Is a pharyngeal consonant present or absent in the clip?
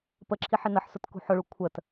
present